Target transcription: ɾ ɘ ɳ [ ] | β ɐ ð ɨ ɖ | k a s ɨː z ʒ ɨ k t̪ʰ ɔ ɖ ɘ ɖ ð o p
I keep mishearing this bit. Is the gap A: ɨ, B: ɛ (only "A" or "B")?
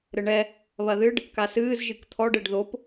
B